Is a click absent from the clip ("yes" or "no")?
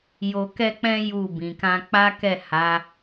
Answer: yes